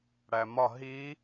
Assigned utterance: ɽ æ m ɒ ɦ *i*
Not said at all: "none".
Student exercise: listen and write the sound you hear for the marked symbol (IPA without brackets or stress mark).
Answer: i